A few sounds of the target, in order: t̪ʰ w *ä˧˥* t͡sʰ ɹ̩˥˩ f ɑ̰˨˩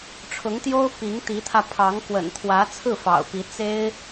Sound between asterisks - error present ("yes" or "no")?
no